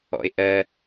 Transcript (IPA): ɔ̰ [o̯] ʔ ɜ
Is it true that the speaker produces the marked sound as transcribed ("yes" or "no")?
no